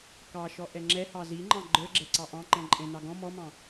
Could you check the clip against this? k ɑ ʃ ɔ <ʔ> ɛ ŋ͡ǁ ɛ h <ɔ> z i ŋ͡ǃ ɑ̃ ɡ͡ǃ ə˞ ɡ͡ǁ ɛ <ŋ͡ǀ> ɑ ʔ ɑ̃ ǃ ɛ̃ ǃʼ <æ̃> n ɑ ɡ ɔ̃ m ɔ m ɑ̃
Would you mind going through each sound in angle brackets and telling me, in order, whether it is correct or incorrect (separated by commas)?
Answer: correct, incorrect, incorrect, incorrect